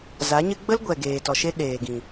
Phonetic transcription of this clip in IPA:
z a˨˦ ɲ ɨ˦ ɡ͡b ə˦ l ɡʷ ɛ˨ ɡ eː˨ t ɔ˨ ʃ e˦ ɗ eː˨ ɡ ĩ˨

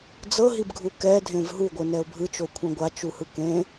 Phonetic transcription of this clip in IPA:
d͡z ɤ ɦ i b ɡʱ u k ɛ dʱ ẽ v ɦ u ɡʷ ɯ n ɛ ʊ̯ bʱ ɯ t͡ʃ o kʷʰ ɛ̃ ɡʷ a t͡ʃ u h ɯ k ẽ

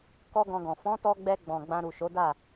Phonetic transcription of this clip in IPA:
k ɔ˦ ɡ ɔ̃˧ ɡ ɔ̃˨ f ɔ̃˨˦ t ɔ˧ ɡ͡b ɛ˧ ɡ͡b ɔ̃˨ ɡ͡b ã˧ ɾ u˨ ʃ o˨˦ d a˦˨

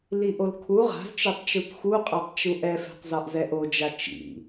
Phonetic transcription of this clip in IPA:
l i ʔ o l kʰ u ʁ a̤ z t͡ʃ e tˤ t͡ʃ u t x u qʼ a tˤ t͡ʃ u ʔ ɛ f e̤ tˤ z ɒ ʔ z ɛ ʔ o d͡ʒ a t͡ʃ ḭ

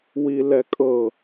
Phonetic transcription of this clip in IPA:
w i l ɛ kʼ ɤ

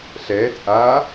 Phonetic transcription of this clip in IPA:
ɬ ɛː t ʔ a

